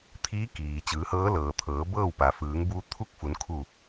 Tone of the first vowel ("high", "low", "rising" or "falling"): rising